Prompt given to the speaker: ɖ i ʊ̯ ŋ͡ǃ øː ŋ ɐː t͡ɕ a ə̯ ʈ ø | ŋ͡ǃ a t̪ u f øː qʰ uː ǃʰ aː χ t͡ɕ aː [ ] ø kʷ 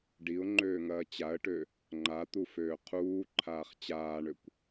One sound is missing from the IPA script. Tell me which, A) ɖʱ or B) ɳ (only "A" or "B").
B